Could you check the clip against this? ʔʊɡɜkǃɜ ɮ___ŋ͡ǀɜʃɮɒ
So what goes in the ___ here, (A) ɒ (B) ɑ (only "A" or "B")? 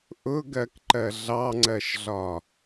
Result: B